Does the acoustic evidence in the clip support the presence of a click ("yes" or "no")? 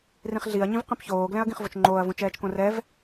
yes